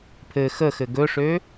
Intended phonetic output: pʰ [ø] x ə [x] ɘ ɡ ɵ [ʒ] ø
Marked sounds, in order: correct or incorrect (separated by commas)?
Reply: incorrect, correct, incorrect